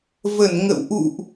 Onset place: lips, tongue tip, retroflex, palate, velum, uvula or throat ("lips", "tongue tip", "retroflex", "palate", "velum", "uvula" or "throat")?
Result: lips